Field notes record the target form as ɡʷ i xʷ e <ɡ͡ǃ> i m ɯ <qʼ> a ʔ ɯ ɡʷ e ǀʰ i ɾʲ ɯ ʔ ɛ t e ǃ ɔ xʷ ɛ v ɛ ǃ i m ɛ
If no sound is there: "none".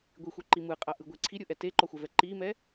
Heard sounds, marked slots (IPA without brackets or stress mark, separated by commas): ǃ, qʼ